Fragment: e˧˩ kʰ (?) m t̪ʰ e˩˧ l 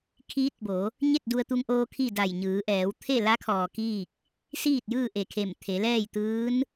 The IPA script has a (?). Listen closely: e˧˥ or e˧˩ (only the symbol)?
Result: e˧˩